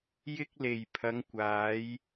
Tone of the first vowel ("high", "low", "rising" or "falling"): high